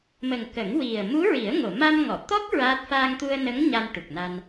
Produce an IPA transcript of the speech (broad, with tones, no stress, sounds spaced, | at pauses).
m ə˨˩ ŋ k ə˨˩˦ ŋ w i˨˩ ə̯ m u˧˥ ɹ i˨˩˦ ə̯ ŋ o˨˩˨ m a˧ m ŋ ɔ˨˩˨ t̪ ɔ˦˥ k̚ ɹ a˦˥ t̚ f aː˧ ŋ t̪ u˧ ə̯ n ə˧˥ ŋ ɲ a˧ n ʈ u˨˩ k̚ n a˧ n